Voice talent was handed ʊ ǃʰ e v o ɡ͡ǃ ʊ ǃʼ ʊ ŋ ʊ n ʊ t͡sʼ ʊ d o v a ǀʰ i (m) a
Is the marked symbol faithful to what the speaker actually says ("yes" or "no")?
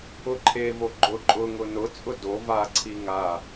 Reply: no